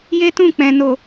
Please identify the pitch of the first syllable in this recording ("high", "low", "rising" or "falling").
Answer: high